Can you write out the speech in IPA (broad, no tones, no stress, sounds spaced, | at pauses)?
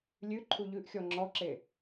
lʲ ʉ ǃʰ u ʎ ʉ ʔ xʲ ɔ ŋ͡ǁ ɔ ǁ e